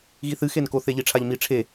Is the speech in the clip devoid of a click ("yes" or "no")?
yes